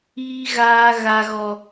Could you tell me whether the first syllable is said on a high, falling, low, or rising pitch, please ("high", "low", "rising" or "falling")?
high